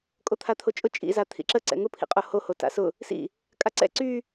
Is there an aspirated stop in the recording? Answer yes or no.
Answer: yes